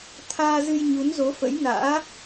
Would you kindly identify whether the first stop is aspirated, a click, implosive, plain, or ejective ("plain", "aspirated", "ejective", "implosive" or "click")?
aspirated